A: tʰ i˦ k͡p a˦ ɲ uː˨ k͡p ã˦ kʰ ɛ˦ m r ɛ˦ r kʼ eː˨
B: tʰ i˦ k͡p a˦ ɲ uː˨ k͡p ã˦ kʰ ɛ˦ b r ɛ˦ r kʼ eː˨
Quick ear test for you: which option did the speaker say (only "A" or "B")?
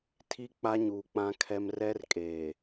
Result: A